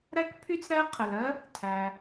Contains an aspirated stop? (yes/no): yes